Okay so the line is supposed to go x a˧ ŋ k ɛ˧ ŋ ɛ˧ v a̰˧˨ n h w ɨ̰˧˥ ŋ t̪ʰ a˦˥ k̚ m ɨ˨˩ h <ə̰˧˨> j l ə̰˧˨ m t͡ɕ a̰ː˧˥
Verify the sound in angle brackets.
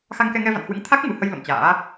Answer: incorrect: ə˧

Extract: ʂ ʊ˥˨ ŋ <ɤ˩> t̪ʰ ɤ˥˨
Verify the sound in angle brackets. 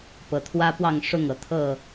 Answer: correct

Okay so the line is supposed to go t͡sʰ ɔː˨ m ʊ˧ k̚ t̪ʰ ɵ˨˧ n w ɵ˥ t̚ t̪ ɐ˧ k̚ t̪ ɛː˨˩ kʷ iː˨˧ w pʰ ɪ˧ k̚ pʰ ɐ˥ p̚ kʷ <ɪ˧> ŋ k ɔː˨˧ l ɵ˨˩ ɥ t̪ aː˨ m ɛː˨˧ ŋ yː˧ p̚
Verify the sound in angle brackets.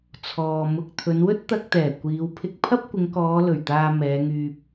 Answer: incorrect: ɪ˨˧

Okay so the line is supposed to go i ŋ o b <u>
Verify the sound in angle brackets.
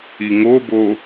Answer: incorrect: o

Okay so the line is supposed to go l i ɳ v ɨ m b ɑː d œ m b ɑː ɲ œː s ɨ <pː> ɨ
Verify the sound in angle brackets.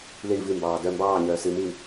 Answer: incorrect: m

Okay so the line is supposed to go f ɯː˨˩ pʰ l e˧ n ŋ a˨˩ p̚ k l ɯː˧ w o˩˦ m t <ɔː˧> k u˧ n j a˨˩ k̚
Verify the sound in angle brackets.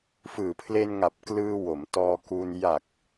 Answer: correct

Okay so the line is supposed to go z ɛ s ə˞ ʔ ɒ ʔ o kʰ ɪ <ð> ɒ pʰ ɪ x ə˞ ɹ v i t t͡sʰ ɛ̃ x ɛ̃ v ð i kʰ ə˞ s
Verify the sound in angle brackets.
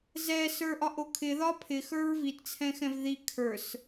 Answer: correct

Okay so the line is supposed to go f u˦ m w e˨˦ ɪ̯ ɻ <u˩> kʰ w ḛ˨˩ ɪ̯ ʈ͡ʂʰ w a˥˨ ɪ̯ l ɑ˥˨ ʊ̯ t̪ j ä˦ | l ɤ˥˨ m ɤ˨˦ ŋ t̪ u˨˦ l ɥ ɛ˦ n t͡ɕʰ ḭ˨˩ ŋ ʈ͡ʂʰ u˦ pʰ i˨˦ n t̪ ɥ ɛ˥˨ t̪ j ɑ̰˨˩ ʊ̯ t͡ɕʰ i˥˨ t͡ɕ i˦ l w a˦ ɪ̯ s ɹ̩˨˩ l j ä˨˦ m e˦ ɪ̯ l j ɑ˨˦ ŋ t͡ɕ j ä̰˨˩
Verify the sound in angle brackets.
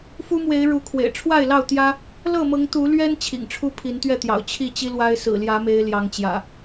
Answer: incorrect: u˨˦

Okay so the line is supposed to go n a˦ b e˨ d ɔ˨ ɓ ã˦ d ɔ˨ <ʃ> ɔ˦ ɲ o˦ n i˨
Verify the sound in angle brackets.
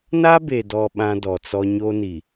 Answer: incorrect: t͡s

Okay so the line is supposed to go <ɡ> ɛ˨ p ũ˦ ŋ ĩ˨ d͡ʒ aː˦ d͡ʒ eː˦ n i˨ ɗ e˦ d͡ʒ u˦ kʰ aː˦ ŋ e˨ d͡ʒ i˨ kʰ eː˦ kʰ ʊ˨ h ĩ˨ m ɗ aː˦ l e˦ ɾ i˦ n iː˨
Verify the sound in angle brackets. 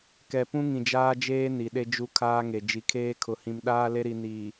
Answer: incorrect: k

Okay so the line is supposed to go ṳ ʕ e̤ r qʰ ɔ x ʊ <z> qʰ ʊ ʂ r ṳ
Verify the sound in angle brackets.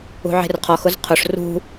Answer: correct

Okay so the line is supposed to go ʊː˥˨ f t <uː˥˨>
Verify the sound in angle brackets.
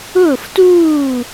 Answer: correct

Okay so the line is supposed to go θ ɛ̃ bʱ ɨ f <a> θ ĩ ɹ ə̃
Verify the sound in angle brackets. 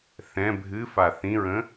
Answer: correct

